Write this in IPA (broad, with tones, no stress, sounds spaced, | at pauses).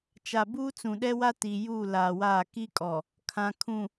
t͡ʃ a˨ b uː˦ t͡s ũ˨ ɗ ɛ˦ w a˦ t i˨ j uː˦˨ l aː˨ w aː˦˨ k i˦ kʼ ɔ˨ | kʰ ã˨ kʰ ũ˨